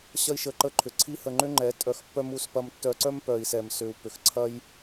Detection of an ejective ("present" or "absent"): present